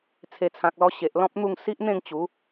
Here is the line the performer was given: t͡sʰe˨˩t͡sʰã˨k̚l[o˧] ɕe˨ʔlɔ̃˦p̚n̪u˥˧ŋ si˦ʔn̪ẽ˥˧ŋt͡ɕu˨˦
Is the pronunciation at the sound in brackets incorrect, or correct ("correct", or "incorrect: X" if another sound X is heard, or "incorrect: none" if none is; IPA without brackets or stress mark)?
incorrect: ɔ˧